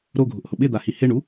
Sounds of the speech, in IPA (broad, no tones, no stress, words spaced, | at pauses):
ɾoɡʱʊʔhʊ ɓɪd̪ahi hɪɳu